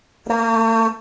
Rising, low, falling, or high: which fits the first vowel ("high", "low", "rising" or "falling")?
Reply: high